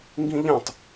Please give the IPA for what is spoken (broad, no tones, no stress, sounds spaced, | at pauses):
ŋ ɡ ĩ ʎ ã tˤ